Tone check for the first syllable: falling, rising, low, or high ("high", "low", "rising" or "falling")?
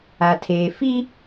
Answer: low